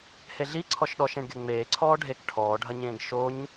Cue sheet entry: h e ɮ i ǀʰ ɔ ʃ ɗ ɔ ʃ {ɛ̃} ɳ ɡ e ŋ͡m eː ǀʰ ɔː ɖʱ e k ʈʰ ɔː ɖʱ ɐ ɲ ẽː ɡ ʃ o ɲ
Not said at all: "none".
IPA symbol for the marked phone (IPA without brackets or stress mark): ẽ